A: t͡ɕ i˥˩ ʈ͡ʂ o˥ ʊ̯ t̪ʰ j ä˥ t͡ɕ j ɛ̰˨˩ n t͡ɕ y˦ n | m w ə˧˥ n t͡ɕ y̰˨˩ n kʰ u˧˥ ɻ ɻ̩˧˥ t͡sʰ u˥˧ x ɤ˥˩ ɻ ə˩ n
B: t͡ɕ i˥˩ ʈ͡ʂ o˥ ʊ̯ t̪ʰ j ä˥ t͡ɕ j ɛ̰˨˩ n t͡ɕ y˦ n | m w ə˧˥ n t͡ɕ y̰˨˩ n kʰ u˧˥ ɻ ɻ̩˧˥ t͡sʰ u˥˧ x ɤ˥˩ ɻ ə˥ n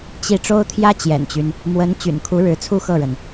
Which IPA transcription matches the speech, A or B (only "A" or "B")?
A